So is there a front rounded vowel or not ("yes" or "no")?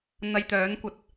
yes